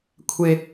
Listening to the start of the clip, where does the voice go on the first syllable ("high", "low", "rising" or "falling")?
low